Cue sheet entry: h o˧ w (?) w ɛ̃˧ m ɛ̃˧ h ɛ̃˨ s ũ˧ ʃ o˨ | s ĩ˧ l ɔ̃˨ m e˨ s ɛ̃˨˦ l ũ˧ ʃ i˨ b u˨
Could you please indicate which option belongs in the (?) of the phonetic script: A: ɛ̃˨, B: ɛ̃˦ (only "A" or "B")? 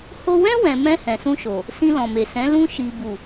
B